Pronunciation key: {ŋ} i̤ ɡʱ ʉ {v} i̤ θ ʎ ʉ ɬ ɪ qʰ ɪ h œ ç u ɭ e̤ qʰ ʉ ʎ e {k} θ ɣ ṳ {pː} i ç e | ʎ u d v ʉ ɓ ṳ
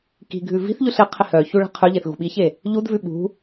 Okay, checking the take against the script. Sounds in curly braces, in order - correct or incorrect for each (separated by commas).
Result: incorrect, correct, incorrect, incorrect